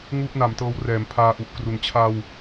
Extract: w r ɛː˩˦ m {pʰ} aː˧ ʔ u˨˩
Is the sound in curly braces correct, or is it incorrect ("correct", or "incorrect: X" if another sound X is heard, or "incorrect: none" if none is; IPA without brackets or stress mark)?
correct